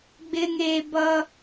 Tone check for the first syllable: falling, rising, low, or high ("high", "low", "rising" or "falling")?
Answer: high